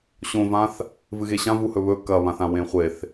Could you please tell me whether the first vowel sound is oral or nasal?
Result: nasal